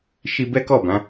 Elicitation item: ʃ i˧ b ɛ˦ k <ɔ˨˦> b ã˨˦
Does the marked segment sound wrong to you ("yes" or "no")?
yes